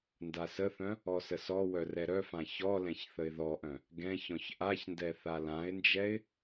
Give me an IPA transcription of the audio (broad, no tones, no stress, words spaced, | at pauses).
ndasəθœ̃ | ɔsəsɔwœ rɛɾœfã çɔlɛ̃ç θəɪ̯ðɔʔœ̃ | ɡɛ̃ çɔ̃çʔaçndɛ θalãɪ̯nd͡ʒɛɪ̯